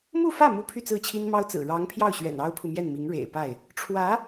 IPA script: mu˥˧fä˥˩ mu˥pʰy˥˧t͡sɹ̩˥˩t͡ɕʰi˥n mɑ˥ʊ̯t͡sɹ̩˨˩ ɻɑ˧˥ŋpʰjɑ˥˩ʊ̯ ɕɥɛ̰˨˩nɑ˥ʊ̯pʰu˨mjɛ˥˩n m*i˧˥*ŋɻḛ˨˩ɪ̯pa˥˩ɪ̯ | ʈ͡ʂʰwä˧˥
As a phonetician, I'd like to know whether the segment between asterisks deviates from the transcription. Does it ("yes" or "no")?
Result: no